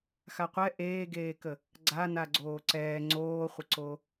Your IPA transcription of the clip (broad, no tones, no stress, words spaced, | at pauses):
xaqʷɛ ʔeːɡeːkə | ɡ͡ǀa naɡ͡ǀoːǀɛː ŋ͡ǀoːχʷəǀo